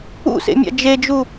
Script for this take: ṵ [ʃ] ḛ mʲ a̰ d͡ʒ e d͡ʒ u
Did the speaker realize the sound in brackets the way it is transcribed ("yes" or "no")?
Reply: no